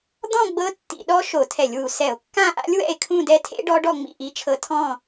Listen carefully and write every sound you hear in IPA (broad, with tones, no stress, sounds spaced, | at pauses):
d̪ ɔ̃˥˧ ɡ͡b ɤ˦˥ tː ḭ˧˩˧ ɗ ɔ˦˥ ʃ o˧˩˧ tʰ ɛ˧˩˧ lʲ w u˨˩ s ɛ˧˩˧ o̯ kː ã˥˧ ʔ a̰˦˥ lʲ w ɛ̰˥˧ e̯ kʰ ũ˥˧ d ɛ˦˥ tʰ ḛ˦˥ ɖ ɔ˦˥ ɖ ɔ˥˧ ŋ͡m ḭ˥˧ ʔ i˦˥ t͡ʃʰ ɤ˦˥ tʰ ɔ̃˥˧